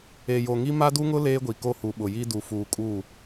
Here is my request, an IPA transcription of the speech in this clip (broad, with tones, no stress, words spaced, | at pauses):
e˨jo˨ŋi˦ ma˦du˦ŋʊ˦ leː˦ɡʷi˨ko˦hu˨ ɓʊ˨ji˦ du˨fuː˨kʼuː˦˨